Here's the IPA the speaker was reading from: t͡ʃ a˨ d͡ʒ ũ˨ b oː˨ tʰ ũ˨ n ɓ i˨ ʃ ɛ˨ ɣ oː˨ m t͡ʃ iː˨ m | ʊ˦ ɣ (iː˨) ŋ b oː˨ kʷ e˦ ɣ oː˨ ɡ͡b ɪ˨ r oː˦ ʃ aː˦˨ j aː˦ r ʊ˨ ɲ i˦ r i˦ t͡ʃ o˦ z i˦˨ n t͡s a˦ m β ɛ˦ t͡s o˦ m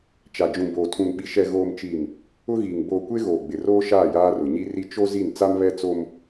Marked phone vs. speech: correct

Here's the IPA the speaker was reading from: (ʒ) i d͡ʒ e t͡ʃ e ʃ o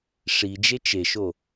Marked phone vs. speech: incorrect: ʂ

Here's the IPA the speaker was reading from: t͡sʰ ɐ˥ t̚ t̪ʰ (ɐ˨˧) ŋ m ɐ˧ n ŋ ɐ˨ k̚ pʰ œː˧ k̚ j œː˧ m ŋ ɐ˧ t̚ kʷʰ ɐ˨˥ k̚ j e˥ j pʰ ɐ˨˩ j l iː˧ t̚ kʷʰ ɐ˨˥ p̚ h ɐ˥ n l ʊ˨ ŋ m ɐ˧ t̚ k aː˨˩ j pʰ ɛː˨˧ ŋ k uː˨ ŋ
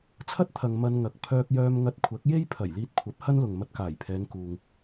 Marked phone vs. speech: incorrect: ɐ˨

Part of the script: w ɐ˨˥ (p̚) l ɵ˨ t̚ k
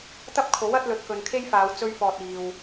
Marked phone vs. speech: incorrect: t̚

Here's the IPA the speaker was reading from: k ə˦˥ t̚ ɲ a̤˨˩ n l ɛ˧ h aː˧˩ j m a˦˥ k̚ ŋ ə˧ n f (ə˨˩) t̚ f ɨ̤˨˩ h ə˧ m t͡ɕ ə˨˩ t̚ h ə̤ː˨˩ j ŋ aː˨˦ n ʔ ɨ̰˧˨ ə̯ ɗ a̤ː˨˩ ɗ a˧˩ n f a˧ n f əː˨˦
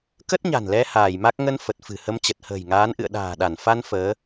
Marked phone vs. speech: correct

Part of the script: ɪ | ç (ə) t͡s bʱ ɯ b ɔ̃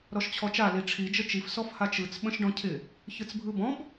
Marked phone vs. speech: incorrect: ɯ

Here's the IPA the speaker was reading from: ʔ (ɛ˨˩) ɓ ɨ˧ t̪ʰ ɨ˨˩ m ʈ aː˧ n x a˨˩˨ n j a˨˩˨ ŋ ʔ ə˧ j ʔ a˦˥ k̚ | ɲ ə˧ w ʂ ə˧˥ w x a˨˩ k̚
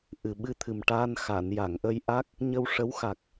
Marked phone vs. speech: incorrect: ɨ˨˩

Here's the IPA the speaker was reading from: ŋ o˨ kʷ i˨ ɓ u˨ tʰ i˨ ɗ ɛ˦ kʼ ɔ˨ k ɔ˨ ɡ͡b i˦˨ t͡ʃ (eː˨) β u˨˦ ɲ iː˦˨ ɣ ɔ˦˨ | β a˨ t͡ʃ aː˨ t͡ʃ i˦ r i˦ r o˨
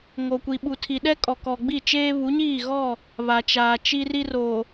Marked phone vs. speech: incorrect: eː˦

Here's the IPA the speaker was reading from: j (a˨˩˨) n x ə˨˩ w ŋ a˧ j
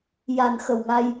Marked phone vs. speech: correct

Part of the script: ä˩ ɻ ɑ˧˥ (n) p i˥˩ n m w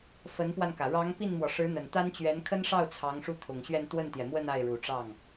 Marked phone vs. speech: incorrect: ŋ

